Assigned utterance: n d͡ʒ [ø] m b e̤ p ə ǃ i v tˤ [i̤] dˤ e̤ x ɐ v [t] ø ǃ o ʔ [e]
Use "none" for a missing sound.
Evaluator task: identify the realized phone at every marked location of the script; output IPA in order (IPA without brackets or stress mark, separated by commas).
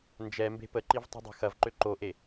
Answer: ɛ, i̤, ǃ, e